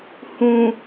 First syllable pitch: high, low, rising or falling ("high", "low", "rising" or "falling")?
low